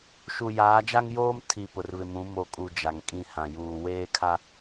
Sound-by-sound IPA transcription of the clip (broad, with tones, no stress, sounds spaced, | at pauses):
ʃ u˨ j aː˨˦ d͡ʒ a˦ ŋ j oː˦ m tʰ i˨ p ʊ˨ r β ɪ˨ m ũ˨˦ m o˨ kʼ u˨ d͡ʒ a˨ ŋ kʼ ĩ˦˨ h ã˨ j uː˨ w eː˦ kʰ a˦